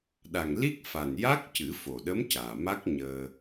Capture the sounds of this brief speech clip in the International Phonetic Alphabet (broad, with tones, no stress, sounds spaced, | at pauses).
ɗ a˨˩ ŋ l i˦˥ k̚ f a˨˩ n j a˦˥ k̚ c ɨ˨˩˦ f o˨˩ ɗ ə˧˥ m c aː˨˩ m a˦˥ k̚ ɲ əː˧